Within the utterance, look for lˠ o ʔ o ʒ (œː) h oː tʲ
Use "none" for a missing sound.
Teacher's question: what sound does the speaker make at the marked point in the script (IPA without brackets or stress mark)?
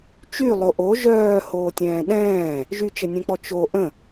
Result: œː